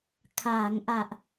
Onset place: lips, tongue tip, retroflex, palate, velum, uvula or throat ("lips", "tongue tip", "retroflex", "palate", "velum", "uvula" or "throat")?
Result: velum